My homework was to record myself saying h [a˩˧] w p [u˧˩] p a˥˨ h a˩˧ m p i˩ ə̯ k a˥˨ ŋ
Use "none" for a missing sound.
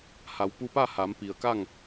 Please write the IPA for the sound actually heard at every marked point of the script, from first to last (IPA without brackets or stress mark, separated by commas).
a˩˧, u˧